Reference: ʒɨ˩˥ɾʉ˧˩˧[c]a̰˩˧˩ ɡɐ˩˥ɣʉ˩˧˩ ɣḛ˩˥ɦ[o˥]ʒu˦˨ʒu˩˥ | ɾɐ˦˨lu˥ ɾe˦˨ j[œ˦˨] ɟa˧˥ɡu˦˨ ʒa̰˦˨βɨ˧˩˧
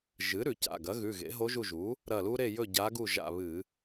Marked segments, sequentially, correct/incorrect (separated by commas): correct, incorrect, incorrect